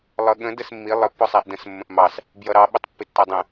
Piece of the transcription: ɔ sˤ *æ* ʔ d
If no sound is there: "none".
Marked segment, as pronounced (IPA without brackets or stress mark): æ